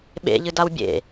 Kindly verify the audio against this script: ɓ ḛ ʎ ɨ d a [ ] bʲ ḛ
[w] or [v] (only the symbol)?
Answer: w